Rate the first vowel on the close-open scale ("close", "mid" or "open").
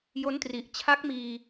mid